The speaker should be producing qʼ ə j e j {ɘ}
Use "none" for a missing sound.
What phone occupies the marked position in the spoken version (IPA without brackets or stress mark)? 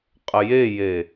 e